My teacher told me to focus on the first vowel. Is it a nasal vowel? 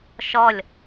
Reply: no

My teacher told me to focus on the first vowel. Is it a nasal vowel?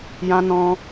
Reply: yes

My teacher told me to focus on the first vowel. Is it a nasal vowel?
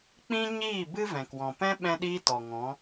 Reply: yes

